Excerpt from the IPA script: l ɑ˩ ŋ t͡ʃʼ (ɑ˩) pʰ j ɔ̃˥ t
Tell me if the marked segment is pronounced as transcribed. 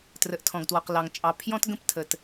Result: yes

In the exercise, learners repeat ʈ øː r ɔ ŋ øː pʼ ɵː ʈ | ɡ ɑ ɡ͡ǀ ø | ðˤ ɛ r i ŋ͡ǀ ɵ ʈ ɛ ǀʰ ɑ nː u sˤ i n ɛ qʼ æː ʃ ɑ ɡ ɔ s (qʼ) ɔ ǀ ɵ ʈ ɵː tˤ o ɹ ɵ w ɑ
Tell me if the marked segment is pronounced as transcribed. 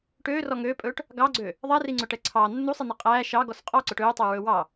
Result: yes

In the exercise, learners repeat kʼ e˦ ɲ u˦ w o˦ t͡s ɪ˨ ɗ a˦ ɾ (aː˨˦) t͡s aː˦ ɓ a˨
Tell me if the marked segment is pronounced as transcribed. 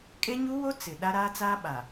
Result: no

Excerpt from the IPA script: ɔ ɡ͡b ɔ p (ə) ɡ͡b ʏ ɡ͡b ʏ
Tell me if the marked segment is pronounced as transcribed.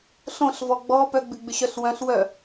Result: no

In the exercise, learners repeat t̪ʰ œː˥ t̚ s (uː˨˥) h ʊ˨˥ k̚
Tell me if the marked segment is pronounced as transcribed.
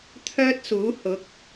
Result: yes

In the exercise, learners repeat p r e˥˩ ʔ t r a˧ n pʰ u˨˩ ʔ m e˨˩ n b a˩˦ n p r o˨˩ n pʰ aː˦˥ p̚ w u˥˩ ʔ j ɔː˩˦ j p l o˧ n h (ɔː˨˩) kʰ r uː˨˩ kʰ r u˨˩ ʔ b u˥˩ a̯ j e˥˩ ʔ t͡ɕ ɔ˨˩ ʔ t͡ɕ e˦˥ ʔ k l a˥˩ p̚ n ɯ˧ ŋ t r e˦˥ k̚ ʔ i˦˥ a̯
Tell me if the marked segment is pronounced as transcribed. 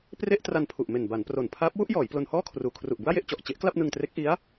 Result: no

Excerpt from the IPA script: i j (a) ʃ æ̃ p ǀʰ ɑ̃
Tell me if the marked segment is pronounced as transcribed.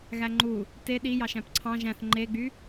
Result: no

